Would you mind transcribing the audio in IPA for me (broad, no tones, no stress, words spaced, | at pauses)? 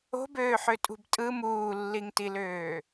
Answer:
o̤bøːħøtʼṳb tʼɯ muːlːiŋtiløː